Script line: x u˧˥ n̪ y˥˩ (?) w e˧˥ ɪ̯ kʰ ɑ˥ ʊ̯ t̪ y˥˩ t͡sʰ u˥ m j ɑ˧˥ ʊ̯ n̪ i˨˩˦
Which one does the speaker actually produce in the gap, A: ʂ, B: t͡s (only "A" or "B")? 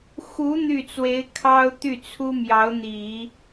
B